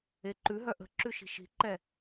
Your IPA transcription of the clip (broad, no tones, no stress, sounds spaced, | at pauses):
e ǃ ʉ ɦ œ ʔ ə̤ ǁ ʉ ʃ i̤ ʃ i̤ ǃ ɛ